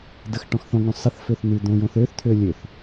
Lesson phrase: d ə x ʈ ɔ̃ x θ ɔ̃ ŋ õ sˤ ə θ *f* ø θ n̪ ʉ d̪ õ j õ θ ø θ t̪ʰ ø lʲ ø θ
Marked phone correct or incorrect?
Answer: correct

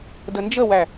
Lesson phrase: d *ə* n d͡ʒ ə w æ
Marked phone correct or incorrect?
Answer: correct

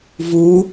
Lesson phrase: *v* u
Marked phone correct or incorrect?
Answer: correct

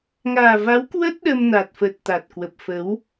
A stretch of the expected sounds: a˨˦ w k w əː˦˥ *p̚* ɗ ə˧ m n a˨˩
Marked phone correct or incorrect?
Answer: incorrect: t̚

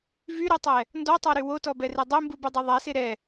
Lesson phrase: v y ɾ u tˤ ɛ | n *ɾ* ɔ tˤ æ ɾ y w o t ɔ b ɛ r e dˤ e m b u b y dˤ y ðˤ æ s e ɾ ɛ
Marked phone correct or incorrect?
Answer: incorrect: d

